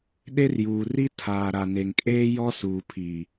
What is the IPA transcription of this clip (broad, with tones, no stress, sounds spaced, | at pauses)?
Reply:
ɗ e˦ r j uː˨ r i˦ tʰ aː˨ ɾ a˨ n e˨ ŋ kʼ eː˦ j ɔ˦ s uː˨ pʰ i˨